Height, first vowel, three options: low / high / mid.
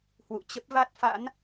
high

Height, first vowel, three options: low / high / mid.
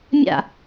low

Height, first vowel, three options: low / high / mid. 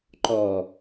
mid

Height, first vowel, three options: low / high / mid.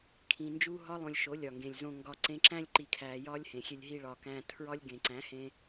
high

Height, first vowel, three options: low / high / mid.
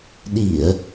high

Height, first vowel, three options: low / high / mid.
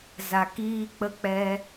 low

